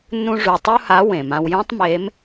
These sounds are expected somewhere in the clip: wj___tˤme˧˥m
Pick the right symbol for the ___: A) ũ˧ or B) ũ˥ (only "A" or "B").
B